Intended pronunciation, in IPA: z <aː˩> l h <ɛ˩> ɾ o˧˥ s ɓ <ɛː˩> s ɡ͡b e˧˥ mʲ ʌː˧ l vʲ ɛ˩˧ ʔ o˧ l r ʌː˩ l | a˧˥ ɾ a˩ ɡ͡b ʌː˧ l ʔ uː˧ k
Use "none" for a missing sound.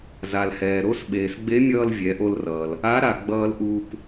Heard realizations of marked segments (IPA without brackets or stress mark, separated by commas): a˩, ɛː˩, eː˩